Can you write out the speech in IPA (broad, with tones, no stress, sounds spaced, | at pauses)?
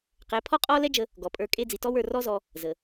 q ɛ˨˦ pʰ ɔ˦ qʼ ɔ˦ l ɛ˦ d͡ʒ ə˧ | ɡ ɔ˨ pʼ ə˞˧ kʼ e˦ d͡z i˨ t ɔ˦ w ə˞˦˨ r ɔ˦ z ɔ˧ | z ə˨